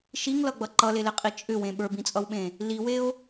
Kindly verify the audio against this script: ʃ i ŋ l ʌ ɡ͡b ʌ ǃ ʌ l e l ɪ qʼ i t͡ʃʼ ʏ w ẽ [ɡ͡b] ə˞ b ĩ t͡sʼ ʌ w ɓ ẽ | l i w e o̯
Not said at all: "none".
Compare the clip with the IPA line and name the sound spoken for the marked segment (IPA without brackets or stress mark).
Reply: ɓ